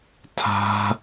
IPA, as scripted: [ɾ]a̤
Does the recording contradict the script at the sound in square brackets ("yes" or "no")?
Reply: yes